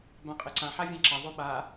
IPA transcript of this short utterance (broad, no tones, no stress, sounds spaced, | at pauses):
b ã qʼ e ǀ ã ħ a vʲ ã ǁ a ðˤ o ɓ a